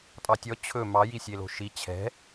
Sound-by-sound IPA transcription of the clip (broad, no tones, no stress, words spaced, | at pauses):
tʼɑtʲɔ t͡ɕʰɵ mɑ jisʲelo̤ʃi t͡ɕʰɛ̤